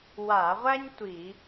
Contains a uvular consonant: yes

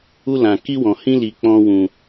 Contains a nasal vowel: yes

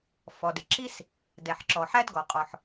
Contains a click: yes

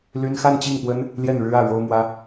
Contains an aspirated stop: no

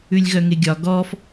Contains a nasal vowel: no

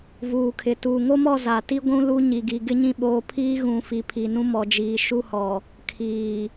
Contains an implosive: yes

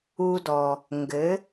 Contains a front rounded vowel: no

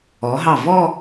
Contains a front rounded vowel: no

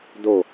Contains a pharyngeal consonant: no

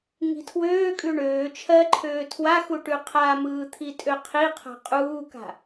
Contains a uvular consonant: yes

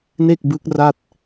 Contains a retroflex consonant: no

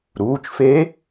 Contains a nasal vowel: no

